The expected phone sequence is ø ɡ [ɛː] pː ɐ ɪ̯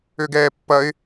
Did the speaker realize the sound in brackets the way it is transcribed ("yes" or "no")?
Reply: yes